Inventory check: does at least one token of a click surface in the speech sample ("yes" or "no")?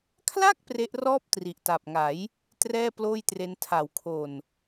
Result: no